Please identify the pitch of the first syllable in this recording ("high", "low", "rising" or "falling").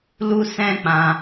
high